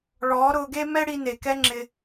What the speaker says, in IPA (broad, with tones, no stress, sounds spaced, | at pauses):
ɭ ɔː˨˦ ɾ ʊː˧ ɡ e˦ m ɛ˦ ɽ i˧ n e˨ k ɛ˦ ŋ͡ǁ ɪ˧